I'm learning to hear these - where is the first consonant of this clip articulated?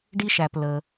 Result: retroflex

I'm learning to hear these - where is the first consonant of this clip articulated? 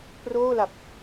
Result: lips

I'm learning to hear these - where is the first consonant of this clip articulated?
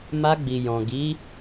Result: lips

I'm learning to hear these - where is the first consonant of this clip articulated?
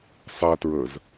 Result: tongue tip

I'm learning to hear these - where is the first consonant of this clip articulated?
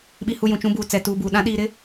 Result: lips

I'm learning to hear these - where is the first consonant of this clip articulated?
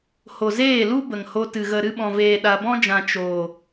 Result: throat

